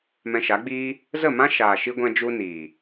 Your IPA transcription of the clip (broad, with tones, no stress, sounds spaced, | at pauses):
m ɛ̃˧ ʃ a˨˦ ɡ͡b iː˦ | z ə˦˨ m ã˦ ʃ aː˨ ʃ i˦ ɡʷ ɛ̃˦ d͡ʒ u˦ n iː˨